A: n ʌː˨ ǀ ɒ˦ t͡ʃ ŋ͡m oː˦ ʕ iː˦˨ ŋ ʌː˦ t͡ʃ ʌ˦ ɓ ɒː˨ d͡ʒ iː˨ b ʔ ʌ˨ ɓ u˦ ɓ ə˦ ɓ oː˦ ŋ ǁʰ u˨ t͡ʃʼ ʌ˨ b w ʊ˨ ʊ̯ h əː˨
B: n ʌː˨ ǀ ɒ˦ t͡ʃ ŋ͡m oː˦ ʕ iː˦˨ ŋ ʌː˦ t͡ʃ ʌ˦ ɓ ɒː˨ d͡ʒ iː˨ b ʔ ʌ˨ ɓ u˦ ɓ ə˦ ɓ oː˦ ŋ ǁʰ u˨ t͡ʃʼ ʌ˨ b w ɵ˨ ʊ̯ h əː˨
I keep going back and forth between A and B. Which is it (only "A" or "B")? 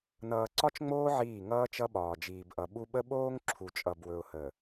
B